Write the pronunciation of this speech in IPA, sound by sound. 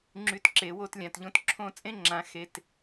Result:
ŋ͡ǁ y˧˥˧ t ǁ e˨˦ w o˥˨ t lʲ ã˩˧˩ t ʎ õ˧˥˧ t ǁʰ õ˥˨ t͡sʼ ẽ˥ ŋ͡ǁ ã˨˦ x e˧˥˧ t

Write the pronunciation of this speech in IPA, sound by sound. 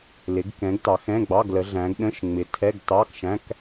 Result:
l ɪ˨˦ ɡ k ɛ̃˨˦ ɡ t ɑ˨˦ x ɛ̃˧˥˧ ɡ͡b ɑ˧˥˧ ɡ l ə˨˦ ɮ æ̃˨˦ ɡ ɗ ə̃˧˥˧ ʃ ŋ͡m ɪ˨˦ tʰ ɛ˧˥˧ ɡ t ɑ˧˥˧ k ʃ æ̃˧˥˧ k

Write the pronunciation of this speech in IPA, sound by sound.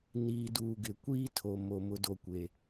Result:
n iː˨ d uː˨ ɡ ɪ˨ kʷ iː˦ tʰ o˨ m o˨ m ʊ˨ d o˨ kʷ e˨

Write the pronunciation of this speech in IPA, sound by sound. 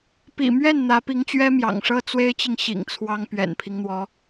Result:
p ḭ˨˩ m ɥ ɛ˥˩ n n̪ ä˧˥ p i˧˥ ŋ t͡ɕ ɥ ɛ˥ m j ɑ̰˨˩ ŋ ʂ ɤ˥ t͡s w e˥ ɪ̯ t͡ɕ i˨ ŋ ɕ ḭ˨˩ ŋ t͡sʰ w ɑ˥ ŋ p ɥ ɛ̰˨˩ n pʰ i˦ ŋ n̪ w ɔ˧˥

